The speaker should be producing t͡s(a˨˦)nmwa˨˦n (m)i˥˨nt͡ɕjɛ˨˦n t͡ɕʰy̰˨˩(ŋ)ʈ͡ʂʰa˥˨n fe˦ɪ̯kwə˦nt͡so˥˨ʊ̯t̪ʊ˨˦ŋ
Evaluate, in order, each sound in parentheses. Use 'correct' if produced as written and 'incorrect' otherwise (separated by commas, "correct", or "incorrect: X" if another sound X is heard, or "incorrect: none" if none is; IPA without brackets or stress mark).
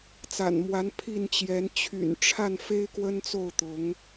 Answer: incorrect: a̰˨˩, incorrect: pʰ, incorrect: n